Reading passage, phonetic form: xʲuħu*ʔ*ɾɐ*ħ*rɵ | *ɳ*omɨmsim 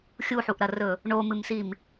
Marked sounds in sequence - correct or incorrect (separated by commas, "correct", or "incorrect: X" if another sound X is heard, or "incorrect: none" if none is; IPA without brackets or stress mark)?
correct, incorrect: none, correct